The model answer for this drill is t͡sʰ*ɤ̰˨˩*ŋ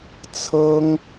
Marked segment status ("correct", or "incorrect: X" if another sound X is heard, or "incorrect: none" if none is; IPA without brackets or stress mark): incorrect: ɤ˥